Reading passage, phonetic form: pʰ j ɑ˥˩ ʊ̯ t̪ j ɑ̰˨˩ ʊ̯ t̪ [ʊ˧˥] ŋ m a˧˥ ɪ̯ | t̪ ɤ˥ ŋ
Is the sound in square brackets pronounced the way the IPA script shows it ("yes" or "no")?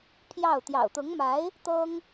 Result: yes